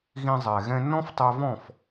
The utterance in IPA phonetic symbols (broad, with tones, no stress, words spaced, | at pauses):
ɣĩ˧zˤɛ˩ ɣɛ̃˧nːɔ̃˥ftˤɛ˧vɔ̃˥˩f